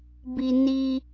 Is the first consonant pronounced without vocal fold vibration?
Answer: no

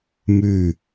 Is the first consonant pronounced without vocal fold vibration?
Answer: no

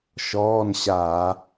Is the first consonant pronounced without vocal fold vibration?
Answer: yes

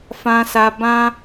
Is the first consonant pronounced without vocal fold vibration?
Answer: yes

